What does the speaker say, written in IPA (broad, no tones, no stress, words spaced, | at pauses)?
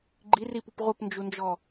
ɡ͡ǃiripup ʁʷəpnd͡ʒund͡ʒɔ